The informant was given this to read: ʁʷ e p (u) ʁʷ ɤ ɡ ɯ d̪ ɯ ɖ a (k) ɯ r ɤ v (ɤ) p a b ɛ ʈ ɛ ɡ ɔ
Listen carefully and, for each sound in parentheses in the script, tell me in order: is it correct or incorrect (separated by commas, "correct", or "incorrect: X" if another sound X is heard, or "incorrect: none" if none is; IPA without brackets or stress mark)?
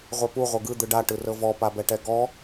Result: correct, incorrect: ʈ, incorrect: ɔ